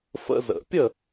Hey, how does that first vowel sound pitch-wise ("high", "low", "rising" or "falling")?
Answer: high